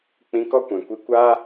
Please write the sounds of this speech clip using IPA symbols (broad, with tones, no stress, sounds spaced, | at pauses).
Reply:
k͡p ĩ˧ k ɔ˦ kʷ ɛ̃˨ kʷ i˧ kʷ aː˦